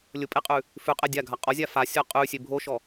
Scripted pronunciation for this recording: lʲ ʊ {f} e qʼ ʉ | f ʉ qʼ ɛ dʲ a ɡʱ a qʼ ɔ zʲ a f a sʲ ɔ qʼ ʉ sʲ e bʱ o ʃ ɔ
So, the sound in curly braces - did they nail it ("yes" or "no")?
no